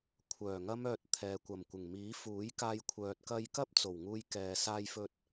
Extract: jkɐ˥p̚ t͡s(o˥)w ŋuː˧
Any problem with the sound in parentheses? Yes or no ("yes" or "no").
yes